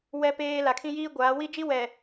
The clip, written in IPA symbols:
w ɛ˦ p eː˦ l a˨ kʰ ĩ˦ j iː˦ ɡʷ aː˨˦ w i˦ d͡ʒ i˦ w ɛ˨

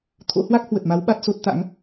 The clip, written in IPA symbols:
t̪ʰ o̰˧˥ h w a˦˥ k̚ h w ə˨˩ t̚ m a˨˦ w ɓ a˦˥ t̚ s o˦˥ t̚ t̪ a̰˧˥ ŋ

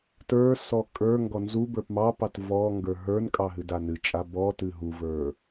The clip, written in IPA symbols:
t ə˞ s ɔ kʼ ə˞ ŋ ɡ ɔ n z u b ə˞ p m ɑ p ɑ t v ɔ ŋ ɡ ə˞ ɦ ə˞ n kʼ ɑ ɦ ɨ d a n ɨ t͡ʃʼ a b ɔ t ɨ ɦ u v ə˞

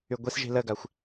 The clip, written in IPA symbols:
y ɡʷ i s ʒ i̤ l ə ɡ a xʷ

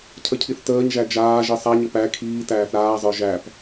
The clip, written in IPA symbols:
cʰ ə cʰ i θ t əː ɲ ʒ æ d͡ʒ aː ʒ i sˤ a ɲ ə p æ kʰ iː t æː θ ɾ aː zˤ ə˞ ʒ æ p

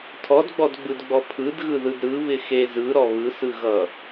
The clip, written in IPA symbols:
tʰ ɔ d ɡ͡b ɔ d ɡ͡b ɯ d ɡ͡b ɔ pʰ ɯ d ɣ ɯ ð ɯ d ɾ ɯ β ɪ x e z ɯ ɾ ɔ β ɯ s ɯ ɣ ʌ

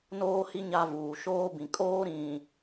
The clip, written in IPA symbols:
n oː˦ h i˦ ɲ a˦ v uː˨ ʃ oː˦ b ĩ˨ kʼ oː˦ ɾ ĩ˨

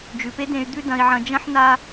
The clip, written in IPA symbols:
d͡ʒ ʉ˩˧ p e˧˥ d ẽ˧ y̯ d̪ ʉ˥ d ɐ̃˧ i̯ ʕ ɐ̃˧ d͡ʒ ɐ̃˥ ħ n a˥

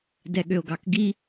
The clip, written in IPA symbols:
d ɛ ɠ ø o̯ ɡ ɑ k ɡ i

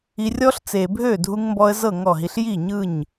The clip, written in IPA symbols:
i˧ rʲ ɔ˦ ɬ t͡s e˨ bʱ ø˦˨ dʱ u˧ ŋ m b ɔ˧ ə̯ z ɤ˦˨ ŋ ɔ˦˨ ɦ i˧ ɬ j i˦˨ ɲ ɯ˦˨ ɲ

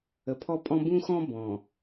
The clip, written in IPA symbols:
ə˨ pʰ ɔ˦ pʼ ɔ̃˦ b ũ˦ x ɔ̃˦ b ɔ̃˨

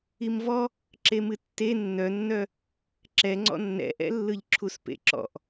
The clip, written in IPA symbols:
i m v ɔ | ǁ e m ɨ tː e nː œ nː œ | ǁ ɛ ŋ͡ǀ ɔ̰ nː ɛ̰ ʔ ɛ̰ lː ɯ ʎ ǁʰ u s p ḛ ǁ ɔ̰ ʔ

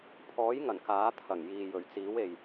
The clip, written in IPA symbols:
pʰ ɔː˨˥ j ŋ ɐ˨˩ n k aː˨˥ t̪ʰ ɐ˨˩ ŋ j iː˨ j ɵ˨˩ ɥ t͡s iː˨˥ w e˨ j

